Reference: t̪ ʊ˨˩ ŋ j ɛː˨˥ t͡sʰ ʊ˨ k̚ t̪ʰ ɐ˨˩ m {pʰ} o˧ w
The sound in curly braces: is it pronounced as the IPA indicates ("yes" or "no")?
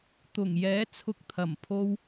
yes